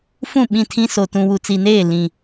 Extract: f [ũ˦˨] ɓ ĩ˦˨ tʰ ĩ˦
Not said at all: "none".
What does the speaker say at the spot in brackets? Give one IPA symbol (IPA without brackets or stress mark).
ũ˦˨